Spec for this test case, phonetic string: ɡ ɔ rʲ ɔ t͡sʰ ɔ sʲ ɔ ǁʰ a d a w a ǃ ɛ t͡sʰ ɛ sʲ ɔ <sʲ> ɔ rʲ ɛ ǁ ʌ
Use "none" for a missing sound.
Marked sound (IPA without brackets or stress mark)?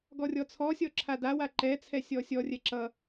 sʲ